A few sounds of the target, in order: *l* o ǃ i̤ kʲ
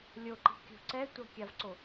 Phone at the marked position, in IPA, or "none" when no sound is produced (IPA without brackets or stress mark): lʲ